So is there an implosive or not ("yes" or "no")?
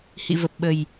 yes